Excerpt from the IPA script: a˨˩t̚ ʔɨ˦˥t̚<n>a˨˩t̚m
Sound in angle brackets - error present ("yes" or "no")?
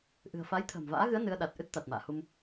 yes